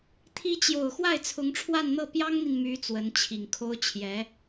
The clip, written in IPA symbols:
t̪ʰ i˧˥ t͡ɕ j o˨˩ ʊ̯ x w a˥˩ ɪ̯ t͡sʰ ʊ˧˥ ŋ ʈ͡ʂʰ w a˥˧ n n̪ ɤ˥˩ p j ɑ˥ ŋ n̪ i˨ n m y˧˥ t͡s w ə˧˥ n t͡ɕʰ i˨˩ ŋ kʰ o˥ ʊ̯ t͡ɕʰ j ɛ˧˥

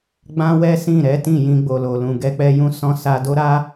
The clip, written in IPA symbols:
ɡ͡b ã˦ w ɛ˦ s ĩ˦˨ ɾ ɛ˨˦ t ĩ˦˨ j ĩ˧ ɡ͡b o˨ l o˨ l ũ˨ ɡ ɛ˧ k͡p ɛ˧ j ũ˦ s ɔ̃˦ s a˧ d o˦ ɾ a˦

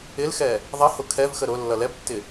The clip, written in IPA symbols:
ɪ l x ɛ | ðˤ ʌ h ʊ kʰ ɛ v x ə ɾ ʊ lː ʌ l ɛ b tː ɪ

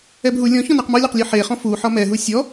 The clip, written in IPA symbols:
ɛ b ɦ u lʲ ɔ̃ ç ɔ̃ n e q m ɔ lʲ ɒ q lʲ ɔ ħ e χ ɔ̃ f u ħ ɒ m ɛ ɦ u sʲ ɔ

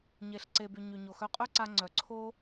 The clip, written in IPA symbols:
ɲ e˩ ɬ ǀ e˩ b y˩ ɲ y˩ ɲ o˩ x œ˧ qʼ œ˥ ǀ a˧ ŋ͡ǀ œ˩ ǀʰ o˥

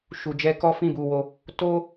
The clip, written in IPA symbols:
ʃ u˨ d͡ʒ ɛ˧ k ɔ˦ f ĩ˦˨ b u˧ w o˧ | t o˦

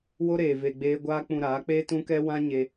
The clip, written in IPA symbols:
w o˦ ɾ eː˨ v e˧ ɡ͡b eː˦ ɡʷ aː˦ k͡p ũ˧ ɾ aː˨˦ k͡p eː˦ t ũ˦ k ɛ˦ w ã˦ ɲ e˧

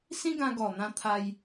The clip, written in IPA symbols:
s ĩ˦ ɡ ã˧ ɡ ɔ˨˩ n̪ ã˧ t̪ʰ a˧ j

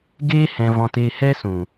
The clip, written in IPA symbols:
ɡ eː˦ h ɛ̃˧ v ɔ̃˧ t eː˧ h ɛ˦ s ũ˨

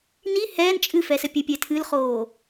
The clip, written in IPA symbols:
n i h ɛː n t͡ʃʼ ɨ f ɛ s ɘ pʲ ɘ pʲ ɛ tʰ ɨ l χ oː

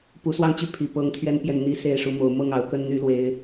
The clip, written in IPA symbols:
p u˨˦ s w ɑ˥˨ ŋ t͡ɕ y˥˨ pʰ i˨˩ p ɤ˨˦ ŋ t̪ʰ ɥ ɛ˦ n p j ɛ˨ n n̪ i˦ s e˥˨ ɪ̯ ʂ u˨˦ m o˨˦ ʊ̯ m ɤ˥˨ ŋ ɑ˨˦ ʊ̯ k ə˦ n n̪ y˦ l w e˦ ɪ̯

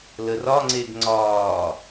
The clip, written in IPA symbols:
l ə r ɒ ŋ͡ǀ e ɡ ŋ͡ǀ ɒː

